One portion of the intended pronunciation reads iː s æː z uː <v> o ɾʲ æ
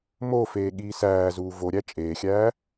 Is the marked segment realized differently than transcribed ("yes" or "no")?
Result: no